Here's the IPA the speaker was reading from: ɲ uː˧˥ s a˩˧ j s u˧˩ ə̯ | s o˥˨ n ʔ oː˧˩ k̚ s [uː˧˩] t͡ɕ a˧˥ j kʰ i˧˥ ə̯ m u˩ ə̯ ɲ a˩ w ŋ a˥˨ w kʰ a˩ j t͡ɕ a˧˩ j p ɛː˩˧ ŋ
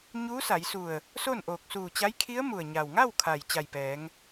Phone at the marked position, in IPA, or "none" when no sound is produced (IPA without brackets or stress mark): uː˧˩